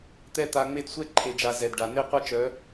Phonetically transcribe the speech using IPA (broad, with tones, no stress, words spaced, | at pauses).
t̪ɛ˦ t̪a˦ ŋ͡me˦dsʷɛ˦ ǃʰe˨d͡ʒa˨ zɛ˨dɖa˨ n̪e˦qʷa˦t͡ʃœ˨˦